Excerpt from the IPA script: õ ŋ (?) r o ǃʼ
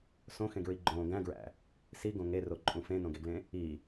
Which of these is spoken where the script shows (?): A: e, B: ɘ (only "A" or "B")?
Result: A